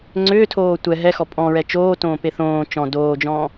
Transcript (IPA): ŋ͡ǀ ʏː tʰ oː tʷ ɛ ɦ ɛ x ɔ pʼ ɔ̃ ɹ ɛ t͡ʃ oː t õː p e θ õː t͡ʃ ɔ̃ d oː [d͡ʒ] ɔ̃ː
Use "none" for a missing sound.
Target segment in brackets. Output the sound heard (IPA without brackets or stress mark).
d͡ʒ